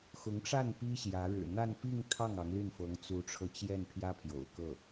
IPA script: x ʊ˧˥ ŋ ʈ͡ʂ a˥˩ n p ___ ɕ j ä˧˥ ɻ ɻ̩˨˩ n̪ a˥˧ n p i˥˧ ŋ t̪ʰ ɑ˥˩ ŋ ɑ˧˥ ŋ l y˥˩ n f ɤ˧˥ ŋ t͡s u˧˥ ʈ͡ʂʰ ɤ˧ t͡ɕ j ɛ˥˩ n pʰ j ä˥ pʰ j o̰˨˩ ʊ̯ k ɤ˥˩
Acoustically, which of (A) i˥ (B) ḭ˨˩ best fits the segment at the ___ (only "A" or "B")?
A